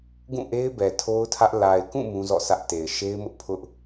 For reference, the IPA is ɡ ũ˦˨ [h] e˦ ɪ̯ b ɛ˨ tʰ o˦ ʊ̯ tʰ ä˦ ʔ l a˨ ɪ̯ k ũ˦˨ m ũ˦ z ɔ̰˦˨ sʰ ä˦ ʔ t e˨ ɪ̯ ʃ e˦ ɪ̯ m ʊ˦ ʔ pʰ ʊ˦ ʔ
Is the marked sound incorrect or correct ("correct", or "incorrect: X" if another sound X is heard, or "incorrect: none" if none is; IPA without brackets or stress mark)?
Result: incorrect: ʔ